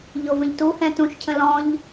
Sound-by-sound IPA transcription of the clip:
ʎ o v ə̃ ʎ t u h ɛ̃ t ũ ʃ cʰ ə̃ l ɔ̃ ʎ

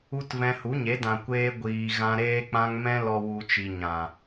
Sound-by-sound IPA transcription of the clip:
u˦ t v ɛ̃˧ h u˨˦ ɲ e˨˦ d ã˨ kʷ eː˧ ɡʷ iː˨ ɣ ã˧ ɾ eː˧ k͡p ã˧ ŋ m ɛ̃˧ l ɔ˨ w u˨ t͡ʃ i˨ ɲ ã˨

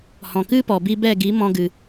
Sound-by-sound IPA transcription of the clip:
h ɔ̃˨ k ɨ˦ p ɔ˨ b i˧ b ɛ˦˨ ɡ i˨˦ m ɔ̃˧ ɡ ɨ˨

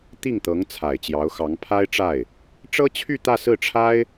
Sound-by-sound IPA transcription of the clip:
t̪ i˥˩ ŋ t̪ ɤ˧˥ ŋ t͡sʰ a˨˩ ɪ̯ t͡ɕ j ɑ˧˥ ʊ̯ x ɑ˧˥ ŋ pʰ a˥ ɪ̯ ʈ͡ʂ a˥˩ ɪ̯ | ʈ͡ʂ ɤ˥ t͡ɕʰ y˥˧ t̪ ä˥˧ s ɹ̩˥˩ ʈ͡ʂʰ a˥ ɪ̯

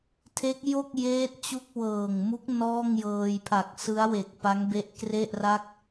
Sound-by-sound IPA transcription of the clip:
tʰ e˦˥ k̚ j o˥˩ k̚ j eː˦˥ t̚ t͡ɕ u˥˩ k̚ w ɤː˨˩ ŋ m u˦˥ k̚ n ɔː˥˩ ŋ j ɤː˧ j pʰ a˨˩ k̚ s ɯ˦˥ a̯ w e˨˩ k̚ p a˦˥ ŋ b e˦˥ ʔ k r e˥˩ ʔ r a˥˩ k̚

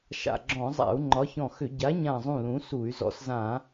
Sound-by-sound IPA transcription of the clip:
ʃ a̰˧˩ ɡ͡ǁ ɔ̃˧˩˧ zˤ a̰˧˩˧ u̯ ŋ͡ǃ ɒ˨˥ ç ɔ̃˧˩ x ʏ˧˩˧ ɟ a˨˥ ɲ ã˧˩ zˤ ũ˧˩ l ũ˨˥ s u˧˩˧ y̯ z ɔ̰˨˥ s z ã˧˩˧

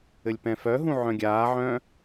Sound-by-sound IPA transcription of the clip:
ɘ lʲ p ɛ̃ f œ ɦ ũ ʕ œ̃ ɡʲ aː ʕ œ̃

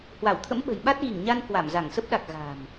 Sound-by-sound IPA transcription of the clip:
h w a˧˩ w t̪ʰ ə̰˧˥ m ɓ ə̤˨˩ j ɓ a˦˥ t̚ ɣ i˧˩ ŋ ɲ a˧ n k w a˧˩ m z a˧˩ ŋ s ə˦˥ p̚ ɗ a˨˩ k̚ ɣ a̤˨˩ m

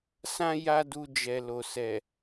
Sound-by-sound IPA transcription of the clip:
s ã˦ j a˦ d u˧ d͡ʒ ɛ˨ l o˨ s ɛ˨

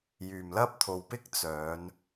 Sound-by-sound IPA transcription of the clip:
j yː˨ m l ɐ˥ p̚ t̪ʰ o˧ w p ɪ˥ k̚ t͡s œː˨˧ n

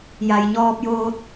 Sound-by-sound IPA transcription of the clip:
j a˩ j ɲ ɔː˧ p̚ j oː˧ t̚

